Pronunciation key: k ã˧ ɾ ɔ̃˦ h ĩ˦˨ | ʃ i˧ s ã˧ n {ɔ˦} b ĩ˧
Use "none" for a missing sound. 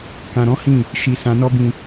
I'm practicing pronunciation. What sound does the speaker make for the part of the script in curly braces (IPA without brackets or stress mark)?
ɔ˦